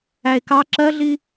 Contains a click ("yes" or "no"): yes